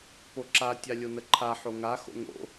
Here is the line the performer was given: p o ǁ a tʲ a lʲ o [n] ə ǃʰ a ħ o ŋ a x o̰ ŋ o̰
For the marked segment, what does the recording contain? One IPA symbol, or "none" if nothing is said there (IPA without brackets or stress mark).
n